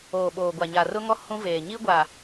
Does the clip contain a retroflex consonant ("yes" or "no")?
no